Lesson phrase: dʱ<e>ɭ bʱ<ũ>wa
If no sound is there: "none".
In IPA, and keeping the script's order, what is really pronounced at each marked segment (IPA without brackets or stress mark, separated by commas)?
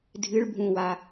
ɨ, ũ